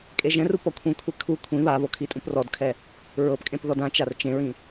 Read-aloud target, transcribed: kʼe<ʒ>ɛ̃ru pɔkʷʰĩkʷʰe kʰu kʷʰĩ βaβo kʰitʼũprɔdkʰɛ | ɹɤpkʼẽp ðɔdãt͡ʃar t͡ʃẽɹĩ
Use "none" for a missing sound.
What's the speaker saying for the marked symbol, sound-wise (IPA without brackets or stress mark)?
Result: ʒ